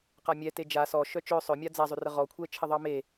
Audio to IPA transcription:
q a mʲ ɛ t e d͡ʒ a s ɔ ʃ œ t͡ʃ œ sˤ œ mʲ a d͡z a zˤ ʏ r ə ʁ ɔ kʷʰ ɛ t͡ʃʰ ɘ ðˤ ɑ m e

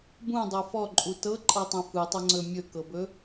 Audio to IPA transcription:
b ũ dˤ ɤ f ɔ ǃʼ u t ɤ ǃʼ ɤ tˤ ə̃ f ɯ tˤ ɤ ŋ͡ǀ ɵ mʲ ɵ k ɤ b ɵ

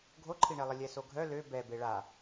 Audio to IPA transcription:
ɡʱ o ǃʰ i ɳ ɛ lˠ ə lʲ ɛ s o ɡʱ œ l ø b ɛ b e ɭ a

